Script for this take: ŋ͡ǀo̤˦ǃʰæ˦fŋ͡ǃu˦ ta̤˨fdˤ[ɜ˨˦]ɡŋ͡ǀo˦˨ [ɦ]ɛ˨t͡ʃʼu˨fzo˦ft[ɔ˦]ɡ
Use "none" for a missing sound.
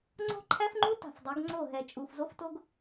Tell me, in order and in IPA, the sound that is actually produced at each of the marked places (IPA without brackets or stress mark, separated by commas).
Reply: ɜ˨˦, ɦ, o˦